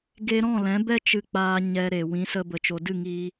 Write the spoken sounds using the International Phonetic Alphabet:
ɡe˧ɾɔ̃˦˨lɛ̃˨˦ bɛ˦ t͡ʃɨ˧k͡paː˧ ɲɛ˧ ɾe˨wĩ˨˦sə˧ bə˧t͡ʃo˧ dɨ˦˨ŋiː˧

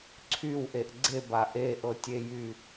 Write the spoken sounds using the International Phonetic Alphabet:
ǀʰywʔeʔ ɡ͡ǀeba ʔeʔɤtʲejy

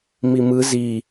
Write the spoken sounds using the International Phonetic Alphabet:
mimɯ zi

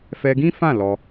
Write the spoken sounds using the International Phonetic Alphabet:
fɛ˧ɡĩ˦fã˦˨ lɔ˧

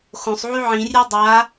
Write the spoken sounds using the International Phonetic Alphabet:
xõsˤʕy ʕĩrʲe dˤa

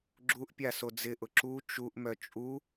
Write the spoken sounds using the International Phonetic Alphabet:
ɡ͡ǁuʔpʲa sod͡zɪʔʊ ǁu t͡ʃuʔmœ t͡ʃʼu

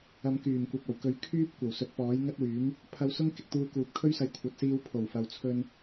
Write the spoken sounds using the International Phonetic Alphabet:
ɐ˨˧mkyː˨˩m kʷɐ˨p̚ɐ˨˩wkɵ˨˥ɥ kʰyː˥p̚kʷɐ˨˩w sɵ˨˥t̚pɔː˨˥jŋɐ˥t̚wyː˨˥m | pʰɐ˧wsʊ˥ŋkɪ˨k̚t̪uː˧ kuː˨˥p̚kʰɵ˥ɥsɐ˧j kʷʰɐ˨t̚siː˧w pʰo˨˩wfɐ˨wt͡sʰɵ˧n

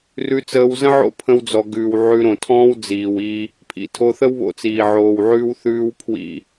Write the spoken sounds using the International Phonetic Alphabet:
rʉ˧ t͡səː˧wzə̃˦ʕo̰˦ pʰə̃˧wd͡zɔ˨ɡʉː˨w ʕʉ˧ɾõ˨tʰɔ̃ː˦w d͡ziː˨wi˧ | pʰḭ˧tʰo˧θə˦w βo̰˧t͡siː˨ ʕoː˨wʕʉː˧w θʉː˧w pʰwḭ˧

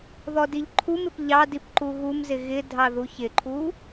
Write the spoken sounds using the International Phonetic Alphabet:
ðɔdiʎǃʰumɪp ʎɑdip ǃuɣumzɪ ɣɪ dʱɑðuçɪǃʰu

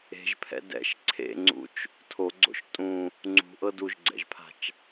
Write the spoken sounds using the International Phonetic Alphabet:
e̤ʒpʰɛ̰ dɛ̰ʃ ǀʰḛŋ͡ǀṵt͡ʃ | tʰoɡ͡ǀo̰ʃ tʼũ | ŋ͡ǀṳʔɤ duʒɡ͡ǀɛ̰ʒpʰa̤t͡ʃ

